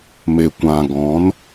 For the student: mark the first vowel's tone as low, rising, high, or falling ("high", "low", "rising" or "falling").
low